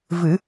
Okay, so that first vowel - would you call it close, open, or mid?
close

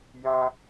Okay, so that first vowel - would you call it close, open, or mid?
open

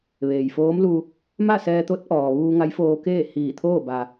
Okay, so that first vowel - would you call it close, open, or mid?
mid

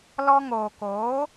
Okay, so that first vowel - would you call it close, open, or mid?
mid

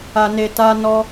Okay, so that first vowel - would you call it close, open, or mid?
open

